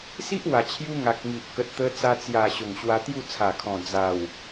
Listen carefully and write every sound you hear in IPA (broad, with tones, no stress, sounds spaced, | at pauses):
s i˦ ʔ w a˨˩ t͡ɕʰ j u˧ ŋ a˨ k̚ ŋ i˨ ʔ k ə˨ t̚ t̪ ə˧ t͡s a˧ t͡s j a˨˩ ɕ o˨˩ ŋ ɕ w a˧ t̪ j u˥˧ t͡sʰ a˨˩ kʰ ɔ̃˨˩ d͡z a˨˩ w